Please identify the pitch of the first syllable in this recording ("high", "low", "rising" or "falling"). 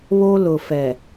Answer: high